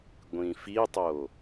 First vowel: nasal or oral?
nasal